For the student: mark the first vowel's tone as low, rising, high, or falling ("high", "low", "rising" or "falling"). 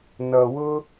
low